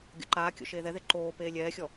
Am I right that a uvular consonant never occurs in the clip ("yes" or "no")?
yes